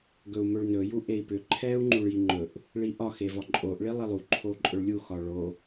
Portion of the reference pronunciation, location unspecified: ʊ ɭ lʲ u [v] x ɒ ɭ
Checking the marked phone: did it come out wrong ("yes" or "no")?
yes